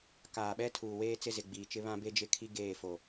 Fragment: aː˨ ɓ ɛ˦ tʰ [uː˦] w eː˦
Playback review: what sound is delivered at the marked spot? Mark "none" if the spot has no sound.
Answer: uː˨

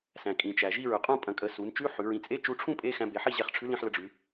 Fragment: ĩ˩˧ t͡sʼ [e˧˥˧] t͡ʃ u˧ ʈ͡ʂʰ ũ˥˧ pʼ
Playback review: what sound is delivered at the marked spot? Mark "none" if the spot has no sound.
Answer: e˧˥˧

